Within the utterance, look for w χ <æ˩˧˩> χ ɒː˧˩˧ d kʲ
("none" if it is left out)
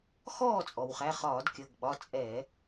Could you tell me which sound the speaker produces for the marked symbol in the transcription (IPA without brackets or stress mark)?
æ˩˧˩